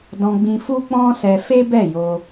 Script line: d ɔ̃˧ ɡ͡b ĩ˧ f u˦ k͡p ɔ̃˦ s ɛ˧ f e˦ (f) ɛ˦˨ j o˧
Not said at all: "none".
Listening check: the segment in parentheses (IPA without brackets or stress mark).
b